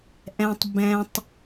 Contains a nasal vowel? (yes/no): yes